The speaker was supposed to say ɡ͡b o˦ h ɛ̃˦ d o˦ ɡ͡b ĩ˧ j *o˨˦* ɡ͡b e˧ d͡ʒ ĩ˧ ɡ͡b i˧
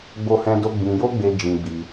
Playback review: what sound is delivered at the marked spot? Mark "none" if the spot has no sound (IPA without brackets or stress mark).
o˦